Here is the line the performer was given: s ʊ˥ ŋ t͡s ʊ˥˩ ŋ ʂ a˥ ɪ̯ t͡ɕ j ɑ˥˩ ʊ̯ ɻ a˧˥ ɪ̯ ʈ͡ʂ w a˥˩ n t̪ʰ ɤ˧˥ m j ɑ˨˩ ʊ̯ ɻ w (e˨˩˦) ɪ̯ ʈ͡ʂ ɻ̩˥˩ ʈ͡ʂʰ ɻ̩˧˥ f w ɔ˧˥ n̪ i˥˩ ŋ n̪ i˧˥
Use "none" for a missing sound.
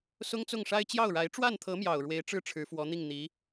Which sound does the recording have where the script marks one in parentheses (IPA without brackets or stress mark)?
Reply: e˧˥